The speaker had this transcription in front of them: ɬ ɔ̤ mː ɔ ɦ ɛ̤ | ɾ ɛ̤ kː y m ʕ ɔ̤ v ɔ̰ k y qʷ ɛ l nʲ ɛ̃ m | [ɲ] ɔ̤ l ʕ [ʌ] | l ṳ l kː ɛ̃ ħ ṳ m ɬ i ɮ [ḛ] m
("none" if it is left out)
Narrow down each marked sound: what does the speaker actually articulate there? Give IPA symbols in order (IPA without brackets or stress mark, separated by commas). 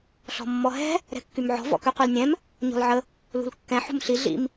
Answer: ɲ, ə, ḭ